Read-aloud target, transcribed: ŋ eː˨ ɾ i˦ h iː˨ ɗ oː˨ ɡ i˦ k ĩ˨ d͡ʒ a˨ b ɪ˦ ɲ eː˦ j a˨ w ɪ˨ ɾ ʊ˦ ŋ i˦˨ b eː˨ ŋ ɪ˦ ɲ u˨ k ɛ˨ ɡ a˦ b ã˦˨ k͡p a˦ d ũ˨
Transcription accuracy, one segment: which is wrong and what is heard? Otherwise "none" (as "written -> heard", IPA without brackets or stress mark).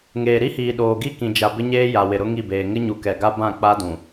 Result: none